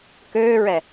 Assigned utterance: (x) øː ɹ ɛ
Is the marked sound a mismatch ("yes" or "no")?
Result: yes